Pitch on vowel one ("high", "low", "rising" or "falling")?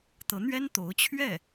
rising